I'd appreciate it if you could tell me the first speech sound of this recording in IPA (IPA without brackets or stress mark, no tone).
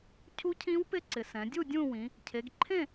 cʰ